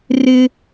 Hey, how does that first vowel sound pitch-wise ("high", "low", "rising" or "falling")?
high